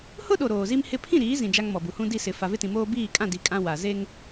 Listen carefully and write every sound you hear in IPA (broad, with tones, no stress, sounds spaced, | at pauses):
h ʊ˦ ɗ o˨ ɾ oː˨ z i˦ m h ɪ˦ pʰ ĩ˦˨ ɾ iː˨˦ z ĩ˨ d͡ʒ a˦ ŋ m ɔ˨ b u˨ h ũ˦ d i˦˨ s ɪ˨ f a˨ v ɪ˦ t ĩ˨ m oː˦ b iː˦˨ kʼ ã˦˨ d i˨˦ kʼ ã˦ w a˨ z e˦ ŋ